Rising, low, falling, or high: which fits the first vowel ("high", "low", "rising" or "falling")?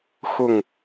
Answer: falling